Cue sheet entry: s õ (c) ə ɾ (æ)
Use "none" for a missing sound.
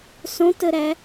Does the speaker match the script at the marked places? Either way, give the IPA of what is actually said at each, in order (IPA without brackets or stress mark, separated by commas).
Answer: t, æ